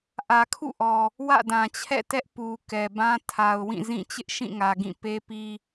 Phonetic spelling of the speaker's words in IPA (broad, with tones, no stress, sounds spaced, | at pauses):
ʔ ä˨ kʰ ṵ˦˨ ʔ ɔ˨ | w ä̰˦˨ d ã˨ t͡ɕʰ ɛ̰˦˨ t ɛ˦ ʔ p u˨ k ɛ˨ b ã˦ tʰ a˨ ʊ̯ w ĩ˦˨ z ĩ˦˨ t͡ɕ ɪ˦ ʔ ʃ ĩ˦˨ ŋ ä˨ ɡ ĩ˦˨ p e˦ p i˦